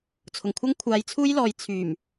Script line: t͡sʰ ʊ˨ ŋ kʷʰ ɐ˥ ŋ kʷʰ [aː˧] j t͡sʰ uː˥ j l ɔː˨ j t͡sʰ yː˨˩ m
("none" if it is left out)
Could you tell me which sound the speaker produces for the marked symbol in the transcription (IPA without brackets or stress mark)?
aː˧